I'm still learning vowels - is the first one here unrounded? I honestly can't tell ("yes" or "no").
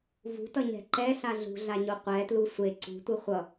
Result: no